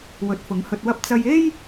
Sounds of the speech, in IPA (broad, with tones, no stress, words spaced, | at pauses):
wɵ˨˥t̚fʊ˨˥ŋhɵ˧t̚wɐ˥p̚ t͡sɐ˧je˥j